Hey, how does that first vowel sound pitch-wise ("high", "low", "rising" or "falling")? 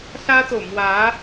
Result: high